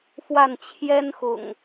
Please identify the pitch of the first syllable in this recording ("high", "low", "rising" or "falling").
falling